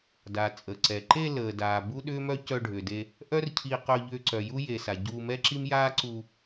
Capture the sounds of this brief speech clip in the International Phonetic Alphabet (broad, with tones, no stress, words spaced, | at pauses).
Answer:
da˩ t͡sʼə˩ǀɛ˩ǃe˧ ləː˩daː˩ bu˥ɗʏː˥mœ˥ cœ˧ɖʱʏː˩de˧ | ʔœ˥r cʰi˧qœ˧ ʎʏː˧ǀœ˩ju˥ je˩sa˩ ɟuː˧mɛ˥ǁi˥m jaː˥ǀu˧